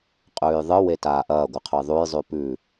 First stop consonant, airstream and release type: ejective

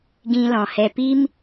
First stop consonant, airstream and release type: plain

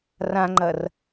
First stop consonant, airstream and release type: click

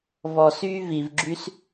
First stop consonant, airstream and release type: click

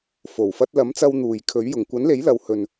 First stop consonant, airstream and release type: plain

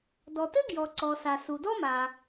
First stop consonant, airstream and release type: plain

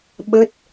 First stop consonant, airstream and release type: implosive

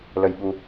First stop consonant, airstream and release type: implosive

